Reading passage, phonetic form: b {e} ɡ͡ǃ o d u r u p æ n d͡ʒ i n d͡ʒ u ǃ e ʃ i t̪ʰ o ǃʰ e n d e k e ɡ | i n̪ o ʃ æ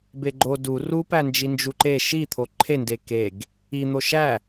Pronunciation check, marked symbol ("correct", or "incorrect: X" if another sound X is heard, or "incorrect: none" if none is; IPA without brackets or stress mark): correct